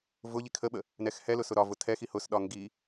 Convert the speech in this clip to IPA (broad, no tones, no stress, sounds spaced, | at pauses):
v ʊ ʎ i kʰ ə ɓ ə | n ɛ x h ɛ l ʊ s ʊ ɾ ɒ v ʊ tʰ ɛ x i h ʊ s ɗ ɒ ŋ ɡ i